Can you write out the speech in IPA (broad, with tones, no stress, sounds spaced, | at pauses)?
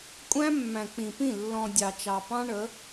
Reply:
kʷʼ æ̃˦ mː æ̃˨ k͡p ĩ˨ p ĩ˦˨ lː ɔ̃˨ dʲ ɑ˨ t͡ʃ ɑ˨ p ɑ̃˦ ɳ ə˨˦